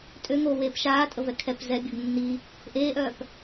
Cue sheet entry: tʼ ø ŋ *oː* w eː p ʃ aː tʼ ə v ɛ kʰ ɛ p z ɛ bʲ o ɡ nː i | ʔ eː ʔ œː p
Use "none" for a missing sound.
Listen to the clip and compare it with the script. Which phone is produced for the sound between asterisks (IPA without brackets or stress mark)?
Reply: oː